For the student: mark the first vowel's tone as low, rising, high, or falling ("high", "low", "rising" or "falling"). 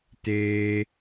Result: high